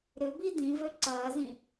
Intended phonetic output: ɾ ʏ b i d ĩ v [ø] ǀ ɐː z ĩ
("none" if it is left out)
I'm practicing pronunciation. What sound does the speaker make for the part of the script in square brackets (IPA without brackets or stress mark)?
ø